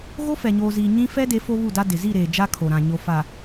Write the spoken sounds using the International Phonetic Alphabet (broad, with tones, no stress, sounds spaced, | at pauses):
ɣ o˦ f ɛ˨ ɲ oː˨ z iː˨ ɲ ĩ˦ f ɛ˦ d e˨˦ f o˦ β u˦˨ d a˦ d ɪ˨ z i˦˨ ɾ eː˨ d͡ʒ a˦ kʰ o˨ ɾ ã˨ ɲ o˨ f a˨